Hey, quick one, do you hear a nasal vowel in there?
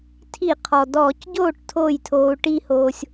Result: no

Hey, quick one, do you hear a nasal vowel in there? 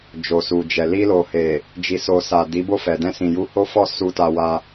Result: yes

